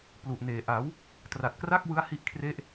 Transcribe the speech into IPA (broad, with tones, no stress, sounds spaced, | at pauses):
p l u˨˩ ʔ n eː˨˩ ʔ a˩˦ w | t r a˨˩ t̚ k r a˥˩ k̚ w ɯ˦˥ a̯ h i˥˩ ʔ kʰ r e˥˩ ʔ